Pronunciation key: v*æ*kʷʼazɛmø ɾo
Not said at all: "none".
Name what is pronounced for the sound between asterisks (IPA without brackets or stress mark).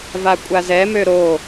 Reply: a